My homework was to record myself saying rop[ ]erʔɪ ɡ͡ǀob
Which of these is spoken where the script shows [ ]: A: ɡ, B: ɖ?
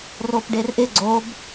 B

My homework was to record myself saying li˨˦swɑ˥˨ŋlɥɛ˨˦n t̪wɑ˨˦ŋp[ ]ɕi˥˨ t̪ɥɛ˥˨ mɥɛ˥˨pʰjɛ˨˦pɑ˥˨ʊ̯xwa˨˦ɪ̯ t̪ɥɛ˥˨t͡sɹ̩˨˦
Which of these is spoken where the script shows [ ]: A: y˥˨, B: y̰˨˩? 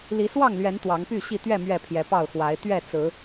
A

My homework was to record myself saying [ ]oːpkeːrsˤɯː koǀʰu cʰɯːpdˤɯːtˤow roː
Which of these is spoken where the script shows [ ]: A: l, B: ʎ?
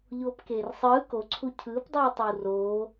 B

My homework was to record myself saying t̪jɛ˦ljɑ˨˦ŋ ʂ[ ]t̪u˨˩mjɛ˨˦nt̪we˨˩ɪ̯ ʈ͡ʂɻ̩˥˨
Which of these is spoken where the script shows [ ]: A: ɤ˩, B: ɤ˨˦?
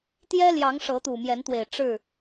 B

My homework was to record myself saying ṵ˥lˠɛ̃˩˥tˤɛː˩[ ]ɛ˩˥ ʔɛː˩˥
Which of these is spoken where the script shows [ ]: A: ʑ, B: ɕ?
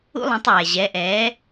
A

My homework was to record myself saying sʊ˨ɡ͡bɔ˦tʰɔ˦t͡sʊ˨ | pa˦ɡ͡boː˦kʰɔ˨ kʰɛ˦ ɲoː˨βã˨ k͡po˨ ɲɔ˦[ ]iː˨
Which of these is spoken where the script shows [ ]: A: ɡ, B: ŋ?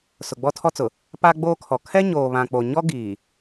A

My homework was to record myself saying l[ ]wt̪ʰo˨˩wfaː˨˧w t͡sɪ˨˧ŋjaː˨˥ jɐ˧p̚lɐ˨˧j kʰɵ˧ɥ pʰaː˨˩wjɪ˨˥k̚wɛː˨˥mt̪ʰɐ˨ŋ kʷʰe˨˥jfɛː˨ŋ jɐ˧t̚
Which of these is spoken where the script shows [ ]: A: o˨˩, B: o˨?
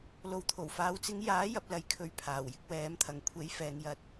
B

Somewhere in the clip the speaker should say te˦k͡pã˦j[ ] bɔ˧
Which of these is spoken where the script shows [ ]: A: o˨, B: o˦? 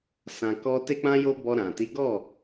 B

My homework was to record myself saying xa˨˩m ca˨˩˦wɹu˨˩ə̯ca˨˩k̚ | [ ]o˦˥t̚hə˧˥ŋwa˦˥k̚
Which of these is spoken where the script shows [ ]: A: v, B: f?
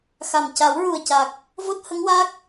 A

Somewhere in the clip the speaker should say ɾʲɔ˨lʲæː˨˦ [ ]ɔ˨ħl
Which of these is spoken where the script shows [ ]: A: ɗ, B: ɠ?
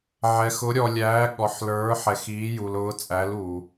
B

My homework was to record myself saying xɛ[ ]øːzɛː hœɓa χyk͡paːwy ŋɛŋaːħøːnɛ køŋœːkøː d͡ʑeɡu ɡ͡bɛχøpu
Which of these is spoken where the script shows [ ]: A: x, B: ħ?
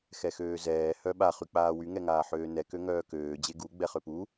A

